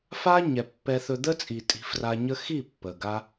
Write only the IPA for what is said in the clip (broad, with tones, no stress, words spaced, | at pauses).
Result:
fa˦ ɲɛ˨pːɛ˧θɵ˧ d̪ə˦t͡sʼi˨ tʼi̤˧ fra˧ɲə˦ xi˦˨ pːə˨ɡa˦